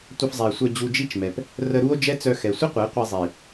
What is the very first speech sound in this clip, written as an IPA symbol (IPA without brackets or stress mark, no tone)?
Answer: tʷ